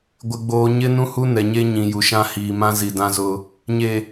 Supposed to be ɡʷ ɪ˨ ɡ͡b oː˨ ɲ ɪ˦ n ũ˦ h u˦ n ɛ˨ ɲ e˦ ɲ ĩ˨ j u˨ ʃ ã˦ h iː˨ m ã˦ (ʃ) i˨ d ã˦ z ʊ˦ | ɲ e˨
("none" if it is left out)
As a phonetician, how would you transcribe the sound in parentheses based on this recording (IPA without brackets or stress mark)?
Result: z